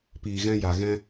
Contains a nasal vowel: yes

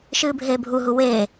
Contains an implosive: no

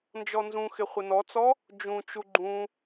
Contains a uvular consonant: yes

